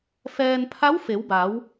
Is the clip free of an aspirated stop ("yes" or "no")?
no